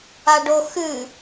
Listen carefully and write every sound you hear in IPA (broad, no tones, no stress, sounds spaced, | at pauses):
a ɖ o x ɨ